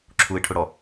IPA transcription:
ǁʰuɪ̯ʈʰʊɽɔ

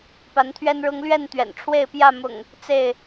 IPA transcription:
pa˨˦nt̪ʰɥɛ˦nɻʊ˦ŋ lɥɛ˥˨n t̪ɥɛ̰˨˩n ʈ͡ʂʰwe˥˨ɪ̯ pjä˥˨mʊ̰˨˩ŋ | t͡se˥˨ɪ̯

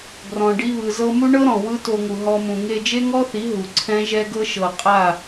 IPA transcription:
ɡrɔ̃˨ ɖi˧βɯ˨zɤ˧ mu˦ɳɤ˦ɾɔ̃˨ wɯ˦to˧ŋu˨ ɦɔ˧mũ˨ ŋe˧d͡ʒe˦ŋɔ˦θi˨˦ ɦu˨ǀʰɛ̃˦ʒɛ˦ɡɤ˦ ʃɤ˨ qʼa˦˨

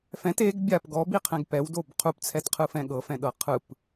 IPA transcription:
fɛ̃t eɡ bʲap ɡɔbiqʰɛ̃ɡ pɛwdob qʰupt͡sʰɛtqʰɯfɛ̃ ɠɤfɛ̃ɗɤ qʰɯp

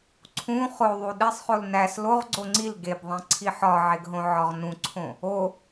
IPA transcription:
ǀʰũ χoðˤu ɗesˤχol næs loʁɡ͡ǀo ŋ͡ǀil ɡebðˤẽǀʰi ħɒʕeɡɦõʕɒʁ nũǀʰõ | o

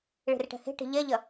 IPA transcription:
ɭe̤rʈɛ̤he̤ʈe̤ ʎɛʎɐ

